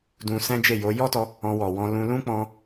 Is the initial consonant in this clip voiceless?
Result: no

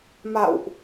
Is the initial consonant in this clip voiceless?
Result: no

